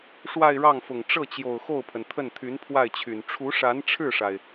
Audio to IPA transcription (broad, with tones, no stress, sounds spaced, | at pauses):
ʂ w a˥˧ ɪ̯ ɻ ɑ˥˩ ŋ f ʊ˨˩ ŋ ʈ͡ʂ ɤ˥˩ t͡ɕ j o˨˩ ʊ̯ x o˥˩ ʊ̯ pʰ ə˩ n t̪ʰ ə˥˩ n t̪ʰ y˧˥ n pʰ w a˥˩ ɪ̯ t͡ɕʰ y˨˩ n ʈ͡ʂʰ u˧˥ ʂ a˧˥ n ʈ͡ʂʰ ɻ̩˥˩ ʂ a˩ ɪ̯